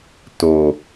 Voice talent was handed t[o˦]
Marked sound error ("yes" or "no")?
yes